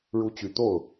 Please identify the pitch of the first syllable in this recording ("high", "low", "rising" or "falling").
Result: rising